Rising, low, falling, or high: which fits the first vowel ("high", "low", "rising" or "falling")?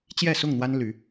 falling